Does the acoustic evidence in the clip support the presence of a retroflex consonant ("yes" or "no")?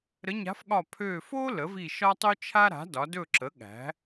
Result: no